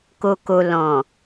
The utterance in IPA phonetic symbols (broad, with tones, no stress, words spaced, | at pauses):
ko˨ko˨ lɔ̃˨